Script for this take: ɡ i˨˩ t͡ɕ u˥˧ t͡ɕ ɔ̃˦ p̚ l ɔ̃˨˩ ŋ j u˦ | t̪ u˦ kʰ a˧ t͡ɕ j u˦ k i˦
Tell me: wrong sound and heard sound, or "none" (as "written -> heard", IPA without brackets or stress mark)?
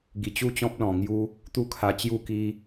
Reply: none